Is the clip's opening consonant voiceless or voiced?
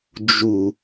voiced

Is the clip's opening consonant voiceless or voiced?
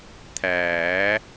voiceless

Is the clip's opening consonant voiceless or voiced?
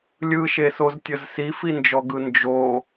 voiced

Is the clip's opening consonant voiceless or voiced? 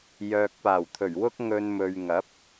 voiced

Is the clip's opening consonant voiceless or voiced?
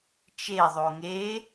voiceless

